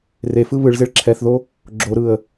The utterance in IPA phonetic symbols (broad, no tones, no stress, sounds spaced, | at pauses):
r e f ɯ β ɯ ɭ z e ɭ ǁʰ ɛ θ ð o | ɡ͡ǁ o ɾ ɯ ə̯